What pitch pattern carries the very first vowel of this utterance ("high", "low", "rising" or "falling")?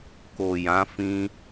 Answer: low